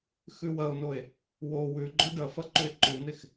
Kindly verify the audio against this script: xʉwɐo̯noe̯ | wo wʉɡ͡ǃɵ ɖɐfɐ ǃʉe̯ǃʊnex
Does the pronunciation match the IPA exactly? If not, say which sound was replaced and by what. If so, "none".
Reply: ʊ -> ʉ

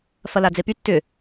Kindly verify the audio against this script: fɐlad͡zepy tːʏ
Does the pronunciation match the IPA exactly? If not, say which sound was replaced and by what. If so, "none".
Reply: none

